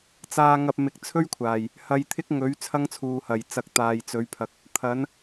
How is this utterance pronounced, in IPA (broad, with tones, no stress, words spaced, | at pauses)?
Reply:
t͡saː˧ŋɐ˧p̚mɪ˨˥k̚ t͡sʰɵ˥ɥkʷʰaː˨˩j | hɐ˧jt̪ʰɪ˥k̚ŋɵ˨˥ɥ t͡sʰɐ˥ŋt͡sʰuː˨hɐ˨˩j t͡sɐ˨k̚ t̪aː˨jt͡sɵ˨˥ɥpʰɐ˨˥k̚ | t̪ʰɐ˨˥n